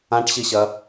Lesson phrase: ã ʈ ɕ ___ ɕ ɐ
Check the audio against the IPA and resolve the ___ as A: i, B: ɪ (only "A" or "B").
A